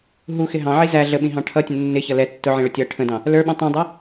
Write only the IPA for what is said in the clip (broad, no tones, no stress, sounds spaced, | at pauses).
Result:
ɦ u x ɪ ɦ ɑ̃ ʕ i z æ ɮ ə ɓ ĩ ɦ ɑ̃ ʈʰ ʌ tʲ ə̃ nː ɪ ç ʌ l ɛ tː ʊ ʕ ĩ ɭ ʊ tʲ ʌ ʈʰ ə̃ d ɑ̃ | l ə˞ ɓ ũ tˤ ĩ dˤ æ